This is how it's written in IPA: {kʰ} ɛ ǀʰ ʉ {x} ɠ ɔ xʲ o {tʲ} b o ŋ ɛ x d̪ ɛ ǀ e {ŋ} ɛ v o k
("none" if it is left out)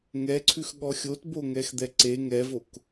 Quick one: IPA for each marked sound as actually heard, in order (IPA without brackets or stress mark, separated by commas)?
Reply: ŋ, x, t, ŋ